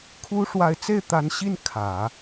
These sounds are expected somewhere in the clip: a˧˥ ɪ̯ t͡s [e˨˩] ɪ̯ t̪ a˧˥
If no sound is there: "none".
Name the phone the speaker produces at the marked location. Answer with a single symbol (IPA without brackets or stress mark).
e˥˩